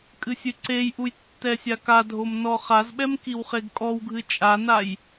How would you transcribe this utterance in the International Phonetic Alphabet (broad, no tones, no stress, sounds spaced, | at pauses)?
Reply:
kʼ ɨ sʲ ɨ ǀ e j ʔ u j tː ɛ sʲ a k a dʱ o m n ɔ χ a z ɓ ɛ m k i w χ e ɡ kʼ ɔ w ɡʱ ɨ t͡ʃʼ a n a j